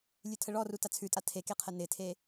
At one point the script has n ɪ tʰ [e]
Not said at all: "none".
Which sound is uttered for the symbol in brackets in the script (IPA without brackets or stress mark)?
e